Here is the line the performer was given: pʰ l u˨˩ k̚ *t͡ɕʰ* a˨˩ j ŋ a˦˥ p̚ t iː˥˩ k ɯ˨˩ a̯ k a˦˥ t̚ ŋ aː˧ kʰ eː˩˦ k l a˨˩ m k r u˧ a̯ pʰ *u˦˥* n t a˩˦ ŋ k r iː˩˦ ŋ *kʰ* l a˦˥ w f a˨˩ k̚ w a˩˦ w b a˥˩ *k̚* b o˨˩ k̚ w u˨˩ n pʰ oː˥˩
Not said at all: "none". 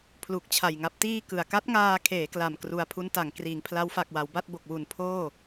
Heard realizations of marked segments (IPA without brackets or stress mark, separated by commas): t͡ɕʰ, u˦˥, pʰ, t̚